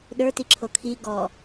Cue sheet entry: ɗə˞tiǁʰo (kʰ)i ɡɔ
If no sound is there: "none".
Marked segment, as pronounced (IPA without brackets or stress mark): kʰ